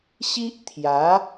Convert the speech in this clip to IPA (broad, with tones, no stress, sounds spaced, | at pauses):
ɕ i˦ ʔ t̪ʰ j a˨˦